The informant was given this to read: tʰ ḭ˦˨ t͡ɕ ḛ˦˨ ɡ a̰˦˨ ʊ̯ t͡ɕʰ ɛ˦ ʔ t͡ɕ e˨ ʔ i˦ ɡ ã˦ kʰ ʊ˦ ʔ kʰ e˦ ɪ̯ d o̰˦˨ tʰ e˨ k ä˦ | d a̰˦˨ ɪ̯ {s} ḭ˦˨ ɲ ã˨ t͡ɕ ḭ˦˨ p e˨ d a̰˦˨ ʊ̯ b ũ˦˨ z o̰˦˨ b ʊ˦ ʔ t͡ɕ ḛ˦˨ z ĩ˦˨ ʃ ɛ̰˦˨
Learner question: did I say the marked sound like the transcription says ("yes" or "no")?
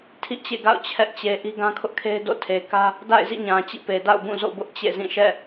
no